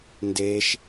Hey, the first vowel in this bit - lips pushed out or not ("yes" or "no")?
no